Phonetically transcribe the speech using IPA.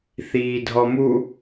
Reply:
θiːdʱɔmu

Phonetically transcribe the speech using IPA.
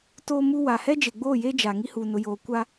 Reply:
toː˦mu˦ wa˨ hɛ˦d͡ʒe˨ɡ͡boː˦˨jeː˦ d͡ʒa˨ ŋi˦huː˨ nʊ˨joː˨kʷa˦

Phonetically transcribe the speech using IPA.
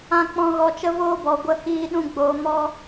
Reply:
ã˧k͡pɔ̃˧ ɣɔ˧t͡ʃə˦voː˦bɔ˨ ɡʷə˦hiː˦ɗũ˦ ɡ͡boː˧mɔ˦

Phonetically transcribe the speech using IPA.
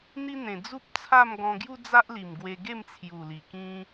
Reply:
n̪i˦n̪ẽ˨˩ d͡zu˦p̚t͡sʰa˥˧m ɡɔ̃˧ɡju˦ d͡za˦ʔli˨˩m ɡwe˧ɡe˥˧mt͡sʰju˨˩ li˨˩kĩ˦

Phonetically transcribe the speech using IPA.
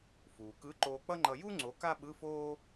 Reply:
fuː˩kɯ˨˥ ǃoː˧k͡pʌ˥ŋ͡ǃʌ˧ ju˥ ŋ͡ǀo˨˥ ka˥ɓɯ˧˥˧foː˥

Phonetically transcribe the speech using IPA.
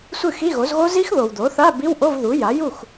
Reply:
sʷɨ˥˩xi˧˥˧ɣo˩˥zɣo˦˥ zi˦˥x ðo˨wd̪o˩˥θa˧˥˧ bi˧˥˧wʔo˧˥˧vðu˩˥ja˩˥ ju˥˩x

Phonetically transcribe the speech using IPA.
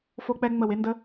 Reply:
fo˦k͡pɛ˦ŋ͡mə˦˨we˦ ndə˦

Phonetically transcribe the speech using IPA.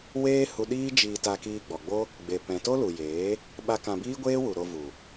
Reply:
weː˦ hu˧ ɗiː˦d͡ʒiː˧ta˧kiː˧ ɡ͡bɔ˨ɡ͡bo˦ | ɡ͡be˨pɛ̃˨to˦ lu˨jeː˨˦ | ɓa˦ kã˧biː˦ɡʷeː˦wu˨ ɾo˧vu˨

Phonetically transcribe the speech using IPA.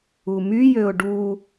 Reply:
umyjøʊ̯ ɖu

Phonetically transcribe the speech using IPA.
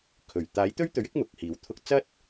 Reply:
kʰɵ˨˩ɥ t̪aː˨˥jt̪ɵ˥ɥ t̪ɵ˧ɥɪ˥k̚ mʊ˨k̚ hiː˨˥wt̪ʰʊ˥k̚ t͡sɐ˥t̚

